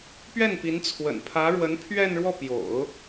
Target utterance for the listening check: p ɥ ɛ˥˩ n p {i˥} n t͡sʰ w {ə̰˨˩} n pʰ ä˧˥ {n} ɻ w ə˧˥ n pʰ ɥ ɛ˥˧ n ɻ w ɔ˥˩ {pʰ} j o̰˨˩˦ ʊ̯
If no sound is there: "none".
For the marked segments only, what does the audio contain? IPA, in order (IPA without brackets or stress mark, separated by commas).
i˧˥, ə̰˨˩, none, p